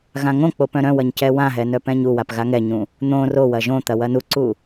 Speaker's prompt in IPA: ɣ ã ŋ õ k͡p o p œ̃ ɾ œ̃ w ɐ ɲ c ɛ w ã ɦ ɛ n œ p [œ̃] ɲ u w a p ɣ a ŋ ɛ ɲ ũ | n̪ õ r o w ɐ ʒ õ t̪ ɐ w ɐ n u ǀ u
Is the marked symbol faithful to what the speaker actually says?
no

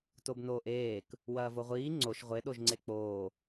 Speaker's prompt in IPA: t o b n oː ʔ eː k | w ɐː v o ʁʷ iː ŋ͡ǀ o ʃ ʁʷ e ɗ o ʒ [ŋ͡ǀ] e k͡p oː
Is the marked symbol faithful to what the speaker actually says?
yes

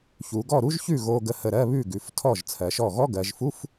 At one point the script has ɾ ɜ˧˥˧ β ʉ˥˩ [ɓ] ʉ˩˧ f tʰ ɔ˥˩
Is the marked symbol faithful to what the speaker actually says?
no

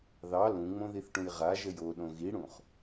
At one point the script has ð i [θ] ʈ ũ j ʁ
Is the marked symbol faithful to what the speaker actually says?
yes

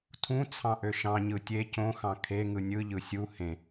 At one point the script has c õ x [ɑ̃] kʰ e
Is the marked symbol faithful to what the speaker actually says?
yes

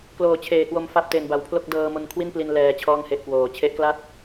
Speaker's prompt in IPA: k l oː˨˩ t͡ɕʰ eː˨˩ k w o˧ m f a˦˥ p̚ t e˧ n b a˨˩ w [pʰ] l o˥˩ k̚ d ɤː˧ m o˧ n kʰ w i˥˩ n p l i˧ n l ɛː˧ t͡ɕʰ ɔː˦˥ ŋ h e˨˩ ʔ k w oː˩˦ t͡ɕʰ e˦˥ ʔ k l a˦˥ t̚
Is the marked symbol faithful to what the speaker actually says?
yes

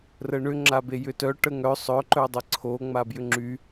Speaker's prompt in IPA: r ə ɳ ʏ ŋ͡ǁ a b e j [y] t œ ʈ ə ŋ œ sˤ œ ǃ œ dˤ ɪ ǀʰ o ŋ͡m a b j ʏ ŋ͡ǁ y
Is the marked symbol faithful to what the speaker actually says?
no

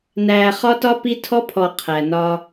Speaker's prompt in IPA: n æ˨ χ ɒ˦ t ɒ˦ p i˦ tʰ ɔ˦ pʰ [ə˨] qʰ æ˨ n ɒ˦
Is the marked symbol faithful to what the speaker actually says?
no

